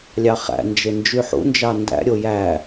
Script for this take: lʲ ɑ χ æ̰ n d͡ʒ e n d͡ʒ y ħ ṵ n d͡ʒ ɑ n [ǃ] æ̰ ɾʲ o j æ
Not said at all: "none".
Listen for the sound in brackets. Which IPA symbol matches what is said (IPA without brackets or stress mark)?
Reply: d